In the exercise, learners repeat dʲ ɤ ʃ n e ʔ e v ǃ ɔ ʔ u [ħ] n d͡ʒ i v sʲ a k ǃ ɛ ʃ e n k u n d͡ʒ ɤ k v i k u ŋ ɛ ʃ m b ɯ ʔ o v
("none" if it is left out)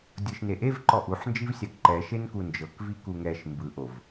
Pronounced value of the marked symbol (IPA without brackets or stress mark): ħ